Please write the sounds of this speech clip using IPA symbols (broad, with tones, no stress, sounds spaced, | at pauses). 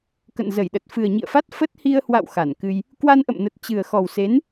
k ə̰˧˨ n z ə˧˩ j ɗ ə˨˩ t̚ f ɨ˨˩ ə̯ ɲ ḭ˧˨ ə̯ f a˦˥ t̚ f ə˦˥ t̚ h i˧ ə̯ h w a̰˧˨ w x a˧˩ n k ɨ˧ j | k w a˧ n ʔ ə̰˧˨ m n ə˨˩ t̚ t͡ɕ ɨ˨˩ ə̯ x ɔ˨˩ w s e˨˦ n